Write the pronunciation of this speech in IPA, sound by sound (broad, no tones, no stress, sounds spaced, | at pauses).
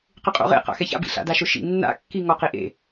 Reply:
q ɪ qʼ o̰ ʁ ḛ q a̰ x ɛ ç a̰ b ḭ ɬ a̰ d a ʃ ʊ ʃ ḭ nː a̰ kː i ŋ ɔ q i ʔ ḛ